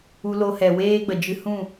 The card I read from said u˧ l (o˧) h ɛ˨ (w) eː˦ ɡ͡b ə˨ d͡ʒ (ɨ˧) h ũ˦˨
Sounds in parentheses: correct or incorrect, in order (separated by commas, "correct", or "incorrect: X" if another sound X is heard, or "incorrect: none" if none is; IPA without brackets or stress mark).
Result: correct, correct, correct